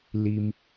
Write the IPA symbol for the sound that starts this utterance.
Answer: l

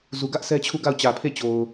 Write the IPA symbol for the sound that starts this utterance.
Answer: z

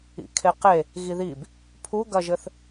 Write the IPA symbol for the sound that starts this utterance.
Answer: ḭ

